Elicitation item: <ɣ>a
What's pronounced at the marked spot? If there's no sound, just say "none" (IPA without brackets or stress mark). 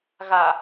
ɣ